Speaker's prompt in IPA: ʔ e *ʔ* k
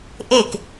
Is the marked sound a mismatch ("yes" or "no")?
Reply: yes